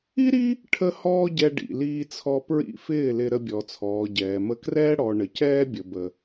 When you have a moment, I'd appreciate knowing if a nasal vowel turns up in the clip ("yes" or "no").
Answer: no